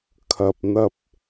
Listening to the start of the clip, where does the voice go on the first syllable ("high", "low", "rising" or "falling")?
low